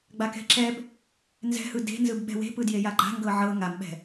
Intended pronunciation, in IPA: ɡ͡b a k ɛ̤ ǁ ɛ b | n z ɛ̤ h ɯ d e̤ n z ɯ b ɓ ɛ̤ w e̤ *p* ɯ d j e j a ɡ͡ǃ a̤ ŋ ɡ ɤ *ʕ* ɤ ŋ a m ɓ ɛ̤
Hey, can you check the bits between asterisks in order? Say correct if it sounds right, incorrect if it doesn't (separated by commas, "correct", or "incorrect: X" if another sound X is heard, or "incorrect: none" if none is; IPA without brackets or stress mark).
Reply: correct, correct